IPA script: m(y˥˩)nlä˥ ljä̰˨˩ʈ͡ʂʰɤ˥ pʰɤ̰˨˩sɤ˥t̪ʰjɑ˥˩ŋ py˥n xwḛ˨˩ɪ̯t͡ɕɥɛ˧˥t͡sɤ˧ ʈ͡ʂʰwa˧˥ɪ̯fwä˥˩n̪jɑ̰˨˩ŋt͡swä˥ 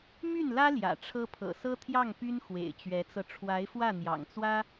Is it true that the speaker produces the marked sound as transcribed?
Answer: yes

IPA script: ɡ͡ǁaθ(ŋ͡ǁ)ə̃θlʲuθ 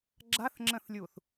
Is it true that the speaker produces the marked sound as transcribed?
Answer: yes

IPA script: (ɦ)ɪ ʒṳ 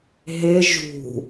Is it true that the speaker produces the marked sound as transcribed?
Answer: yes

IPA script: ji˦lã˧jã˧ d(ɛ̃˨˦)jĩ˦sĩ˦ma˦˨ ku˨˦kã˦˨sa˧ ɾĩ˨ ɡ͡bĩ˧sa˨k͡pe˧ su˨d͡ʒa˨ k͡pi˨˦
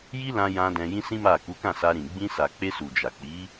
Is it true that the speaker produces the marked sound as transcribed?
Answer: no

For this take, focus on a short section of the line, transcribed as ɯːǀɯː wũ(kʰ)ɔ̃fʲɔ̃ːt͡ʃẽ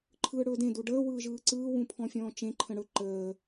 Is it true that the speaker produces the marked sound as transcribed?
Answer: no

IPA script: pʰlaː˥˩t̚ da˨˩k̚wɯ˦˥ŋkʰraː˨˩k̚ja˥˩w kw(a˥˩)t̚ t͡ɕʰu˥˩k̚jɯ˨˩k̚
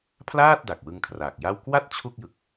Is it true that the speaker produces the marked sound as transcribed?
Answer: yes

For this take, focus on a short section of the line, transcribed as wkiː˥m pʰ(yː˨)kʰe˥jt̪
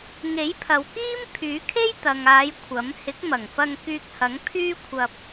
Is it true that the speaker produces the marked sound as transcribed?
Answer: no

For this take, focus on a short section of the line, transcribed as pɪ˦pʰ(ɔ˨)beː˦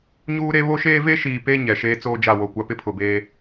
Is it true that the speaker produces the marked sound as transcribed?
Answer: no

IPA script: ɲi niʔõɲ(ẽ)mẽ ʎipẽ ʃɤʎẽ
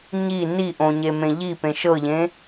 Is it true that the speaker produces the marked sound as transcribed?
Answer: no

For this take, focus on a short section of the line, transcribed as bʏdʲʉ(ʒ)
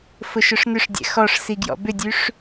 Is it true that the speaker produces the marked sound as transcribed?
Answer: no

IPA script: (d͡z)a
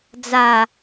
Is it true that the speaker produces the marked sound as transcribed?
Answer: yes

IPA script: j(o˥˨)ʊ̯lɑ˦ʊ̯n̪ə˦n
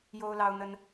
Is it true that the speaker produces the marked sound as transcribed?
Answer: no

